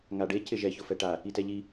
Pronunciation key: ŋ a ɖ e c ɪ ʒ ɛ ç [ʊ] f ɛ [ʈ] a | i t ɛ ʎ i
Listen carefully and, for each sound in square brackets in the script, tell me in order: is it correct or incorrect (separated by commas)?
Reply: correct, correct